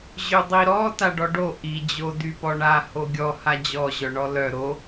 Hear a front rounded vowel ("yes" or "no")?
yes